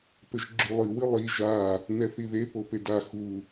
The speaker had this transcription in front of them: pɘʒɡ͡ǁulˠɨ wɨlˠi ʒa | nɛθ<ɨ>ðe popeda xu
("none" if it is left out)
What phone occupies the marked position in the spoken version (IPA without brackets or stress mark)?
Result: i